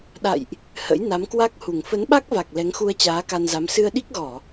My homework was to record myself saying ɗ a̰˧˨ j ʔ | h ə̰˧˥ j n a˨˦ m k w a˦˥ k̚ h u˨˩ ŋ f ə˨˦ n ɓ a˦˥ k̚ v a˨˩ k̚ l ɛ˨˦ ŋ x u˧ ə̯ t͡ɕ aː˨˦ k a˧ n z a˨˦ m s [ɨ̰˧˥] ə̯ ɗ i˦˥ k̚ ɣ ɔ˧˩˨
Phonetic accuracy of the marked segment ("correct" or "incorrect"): incorrect